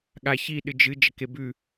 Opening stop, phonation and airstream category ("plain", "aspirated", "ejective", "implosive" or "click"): implosive